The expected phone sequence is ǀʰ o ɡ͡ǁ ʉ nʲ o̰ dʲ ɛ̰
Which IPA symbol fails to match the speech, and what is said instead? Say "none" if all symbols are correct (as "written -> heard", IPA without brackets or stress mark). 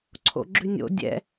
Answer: o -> o̰